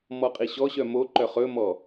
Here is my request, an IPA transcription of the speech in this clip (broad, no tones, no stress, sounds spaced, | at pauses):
m ɔ qʼ i ɕ ɔ ɕ œ m o ǃ œ χ ɵ m ɔ